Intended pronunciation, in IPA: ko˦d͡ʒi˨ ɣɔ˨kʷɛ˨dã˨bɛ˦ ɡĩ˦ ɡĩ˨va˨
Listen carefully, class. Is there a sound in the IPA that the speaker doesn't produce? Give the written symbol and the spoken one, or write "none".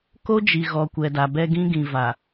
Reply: ã˨ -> a˨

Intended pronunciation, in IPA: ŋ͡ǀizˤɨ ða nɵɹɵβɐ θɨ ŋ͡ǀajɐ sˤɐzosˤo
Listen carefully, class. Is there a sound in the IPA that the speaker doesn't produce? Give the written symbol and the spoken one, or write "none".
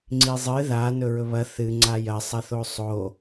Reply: z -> θ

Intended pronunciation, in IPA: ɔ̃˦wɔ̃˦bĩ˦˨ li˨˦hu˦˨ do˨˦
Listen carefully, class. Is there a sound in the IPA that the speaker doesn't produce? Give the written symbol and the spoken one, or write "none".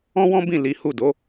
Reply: none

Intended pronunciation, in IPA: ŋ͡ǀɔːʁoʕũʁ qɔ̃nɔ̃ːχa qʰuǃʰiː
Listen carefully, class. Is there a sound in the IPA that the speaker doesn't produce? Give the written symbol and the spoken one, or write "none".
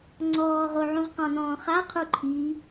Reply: none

